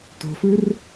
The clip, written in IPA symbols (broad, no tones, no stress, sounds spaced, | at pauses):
t o̤ f ɯ r